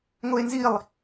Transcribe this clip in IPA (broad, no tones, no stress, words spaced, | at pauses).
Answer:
ŋoe̯nzilˠ